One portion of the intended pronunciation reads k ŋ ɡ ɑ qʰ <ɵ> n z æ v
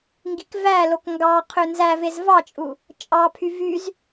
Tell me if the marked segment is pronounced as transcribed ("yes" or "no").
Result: no